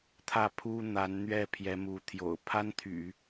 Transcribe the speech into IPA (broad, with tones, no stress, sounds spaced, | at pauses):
t̪ʰ ä˥˩ pʰ u˥ n̪ a˧˥ n n̪ ɥ ɛ˥˩ pʰ j ɛ˧˥ m u˧˥ t̪ʰ j o̰˨˩ ʊ̯ pʰ a˥ n t̪ʰ y̰˨˩˦